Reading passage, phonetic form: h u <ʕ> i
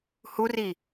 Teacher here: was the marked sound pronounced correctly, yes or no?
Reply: no